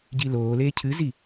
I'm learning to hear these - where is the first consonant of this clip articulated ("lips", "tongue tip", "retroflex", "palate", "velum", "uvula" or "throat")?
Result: palate